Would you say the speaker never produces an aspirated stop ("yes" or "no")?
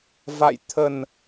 no